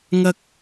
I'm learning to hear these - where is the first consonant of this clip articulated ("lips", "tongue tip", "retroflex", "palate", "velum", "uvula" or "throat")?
velum